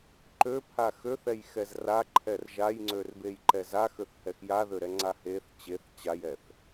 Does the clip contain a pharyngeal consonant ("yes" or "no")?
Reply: no